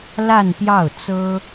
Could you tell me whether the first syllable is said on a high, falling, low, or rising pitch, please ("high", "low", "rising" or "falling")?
falling